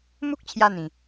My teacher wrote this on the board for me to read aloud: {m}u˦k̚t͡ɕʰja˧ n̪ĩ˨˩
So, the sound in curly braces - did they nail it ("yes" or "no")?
yes